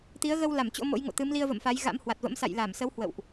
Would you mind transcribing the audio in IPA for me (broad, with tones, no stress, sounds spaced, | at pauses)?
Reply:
t̪ i˨˦ ə̯ ɣ ə˧ w l a˧˩ m t͡ɕ o̰˧˥ m o̰˧˥ j ŋ o̰˧˨ t̪ ɨ˨˦ m l i˧ ə̯ v ə̰˧˨ m f a˨˦ j ɣ a̰˧˥ m h w a˨˩ t̚ v ə̰˧˥ m s a̰˧˨ j l a˧˩ m s ə˨˦ w h w ə̰˧˨ w ʔ